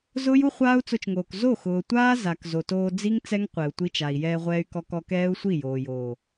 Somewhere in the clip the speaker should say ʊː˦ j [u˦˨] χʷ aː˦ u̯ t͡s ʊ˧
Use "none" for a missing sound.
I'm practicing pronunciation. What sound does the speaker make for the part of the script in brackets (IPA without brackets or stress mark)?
u˦